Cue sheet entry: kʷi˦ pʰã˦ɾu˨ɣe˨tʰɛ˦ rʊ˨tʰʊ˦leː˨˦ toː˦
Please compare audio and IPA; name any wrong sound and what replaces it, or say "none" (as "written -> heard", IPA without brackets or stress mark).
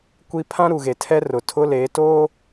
none